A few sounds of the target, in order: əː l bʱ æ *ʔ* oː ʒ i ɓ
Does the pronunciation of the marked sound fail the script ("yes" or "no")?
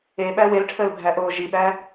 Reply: no